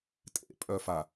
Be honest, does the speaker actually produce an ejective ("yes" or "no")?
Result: yes